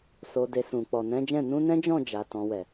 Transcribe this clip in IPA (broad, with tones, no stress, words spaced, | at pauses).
so˨de˨ sũ˨ k͡pɔ˨nɛ̃˨˦d͡ʒɛ̃˦˨ nũ˧ nɛ̃˦d͡ʒɔ̃˦˨d͡ʒa˨ tɔ̃˨wɛ˨